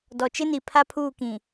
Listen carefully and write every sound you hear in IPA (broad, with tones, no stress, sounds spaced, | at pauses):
d ɔ˨ t͡ʃ ɪ˦ n i˨ pʰ a˦ pʰ uː˦˨ k ĩ˨